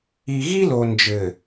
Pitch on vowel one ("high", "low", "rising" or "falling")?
low